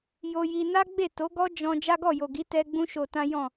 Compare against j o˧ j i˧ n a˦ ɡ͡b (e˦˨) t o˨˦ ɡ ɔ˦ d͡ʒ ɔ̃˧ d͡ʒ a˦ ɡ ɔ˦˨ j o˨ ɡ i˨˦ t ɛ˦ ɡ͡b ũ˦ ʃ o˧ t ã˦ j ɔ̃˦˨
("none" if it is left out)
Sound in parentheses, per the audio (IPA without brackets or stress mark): e˦˨